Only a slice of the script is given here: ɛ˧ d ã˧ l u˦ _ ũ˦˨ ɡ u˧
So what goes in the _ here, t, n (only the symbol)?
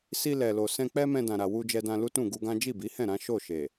t